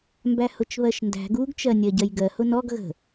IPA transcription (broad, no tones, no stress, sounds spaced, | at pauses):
m b æ h ʊ t͡ʃ β ɜ ʃ n d æ̤ ɡ u ɡ t͡ʃ ɜ nʲ ɜ ɟ ɜ j ɡ ɜ h ʊ n ɔ ɡ ɣ ə̤